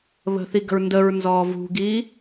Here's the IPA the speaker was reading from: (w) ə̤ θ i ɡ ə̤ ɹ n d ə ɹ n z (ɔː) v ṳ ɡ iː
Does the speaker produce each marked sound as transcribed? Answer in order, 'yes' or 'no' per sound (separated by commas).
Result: no, yes